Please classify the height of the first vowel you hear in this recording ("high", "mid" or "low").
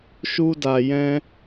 high